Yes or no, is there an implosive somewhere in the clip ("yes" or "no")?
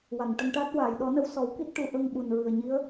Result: yes